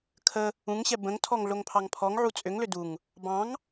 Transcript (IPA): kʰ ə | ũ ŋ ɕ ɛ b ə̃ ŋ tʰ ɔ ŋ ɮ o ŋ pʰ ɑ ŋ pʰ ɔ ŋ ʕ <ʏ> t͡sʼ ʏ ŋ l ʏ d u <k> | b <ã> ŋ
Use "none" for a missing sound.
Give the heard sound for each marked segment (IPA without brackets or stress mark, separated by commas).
u, ŋ, ɑ̃